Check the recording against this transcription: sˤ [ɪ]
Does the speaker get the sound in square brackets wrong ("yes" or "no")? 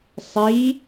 yes